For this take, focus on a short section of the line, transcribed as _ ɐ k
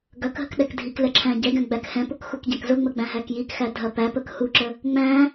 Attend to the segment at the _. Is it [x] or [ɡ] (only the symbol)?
ɡ